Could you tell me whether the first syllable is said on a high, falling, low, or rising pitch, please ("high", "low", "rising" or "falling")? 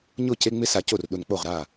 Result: falling